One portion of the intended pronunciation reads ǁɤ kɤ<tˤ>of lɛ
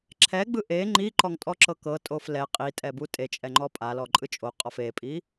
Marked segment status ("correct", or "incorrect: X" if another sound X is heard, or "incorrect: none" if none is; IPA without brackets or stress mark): incorrect: tʼ